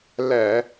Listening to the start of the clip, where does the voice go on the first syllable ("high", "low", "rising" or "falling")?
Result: low